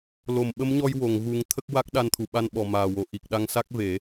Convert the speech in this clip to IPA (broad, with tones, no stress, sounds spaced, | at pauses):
l o˨˩˨ m ɓ ə˧˥ m ɲ ɔ˧ j w o˨˩˨ ŋ ɣ u˨˩˦ ŋ t̪ʰ ə˦˥ k̚ w a˦˥ k̚ ɗ a˧ n t̪ʰ u˨˩ ɓ a˧ n ɓ ɔ˨˩ m aː˨˩ w o˨˩ ʔ i˨˩ k̚ ɗ a˧ ŋ s a˦˥ k̚ v e˨˩˦